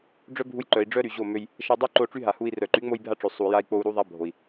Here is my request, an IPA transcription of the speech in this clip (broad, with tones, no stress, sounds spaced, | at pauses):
ɖ͡ʐ œ˦ bʱ u˧ j ǃ œ˨ i̯ ɖ͡ʐ œ˦ ɾ y˨ ʑ o˦˨ m ø˧ j | ʃ a˧ dˤ y˦ ǃ o˧ ʈ͡ʂ y˦ ɦ a˨ h u˧ i̯ r œ˨ ǃ y˨˦ ŋ͡m o˧ j bʱ a˧ ʈ͡ʂ ø˨ sˤ u˨ j a˧ i̯ k͡p o˧ u̯ ɾ u˦ ðˤ a˦ bʱ o˨ i̯